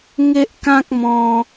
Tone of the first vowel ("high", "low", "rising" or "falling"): high